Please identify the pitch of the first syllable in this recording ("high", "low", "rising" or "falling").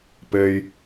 low